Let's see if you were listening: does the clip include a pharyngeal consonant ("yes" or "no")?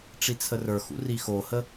no